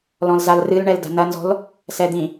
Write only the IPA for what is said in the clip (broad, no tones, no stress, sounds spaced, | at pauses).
l ɔ̃ l z a l r ɨ l ɳ ɛ l d a̤ n ɐ n z ɔ̤ l | s ɛ d̪ ĩ